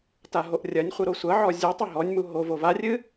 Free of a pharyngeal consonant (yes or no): no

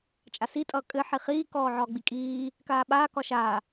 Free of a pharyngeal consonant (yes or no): no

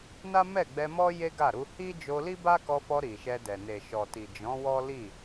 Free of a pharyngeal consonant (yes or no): yes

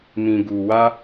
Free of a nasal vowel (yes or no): no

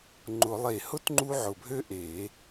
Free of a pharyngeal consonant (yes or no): no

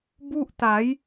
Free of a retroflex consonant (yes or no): yes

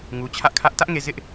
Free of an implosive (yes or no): yes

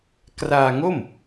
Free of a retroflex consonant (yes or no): yes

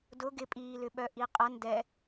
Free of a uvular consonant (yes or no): no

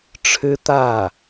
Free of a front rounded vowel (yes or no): yes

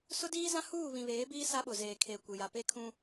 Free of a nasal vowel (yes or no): no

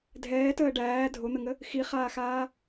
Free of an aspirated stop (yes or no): yes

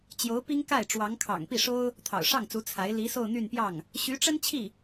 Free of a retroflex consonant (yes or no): no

